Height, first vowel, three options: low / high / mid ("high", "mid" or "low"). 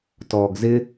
mid